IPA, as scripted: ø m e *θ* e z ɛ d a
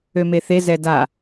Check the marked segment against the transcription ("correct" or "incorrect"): correct